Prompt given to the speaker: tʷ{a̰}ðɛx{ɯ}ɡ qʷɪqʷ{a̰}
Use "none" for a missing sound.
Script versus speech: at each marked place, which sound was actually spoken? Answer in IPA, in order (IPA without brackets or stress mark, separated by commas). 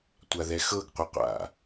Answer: a, ɤ, a̰